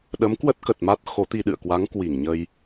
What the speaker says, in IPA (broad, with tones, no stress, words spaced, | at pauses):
ɗə˨˦mkwə˦˥t̚ kə˨˩t̚ma˦˥t̚ xo˨˦t̪i˧ ɗɨ̰˧˨ə̯kwa˨˦ŋ kwi˧˩ŋɲə˧j